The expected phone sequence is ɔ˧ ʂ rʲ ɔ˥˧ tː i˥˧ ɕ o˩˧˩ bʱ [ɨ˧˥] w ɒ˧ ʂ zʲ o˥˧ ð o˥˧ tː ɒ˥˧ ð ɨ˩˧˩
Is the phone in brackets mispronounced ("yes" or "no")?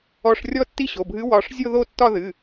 no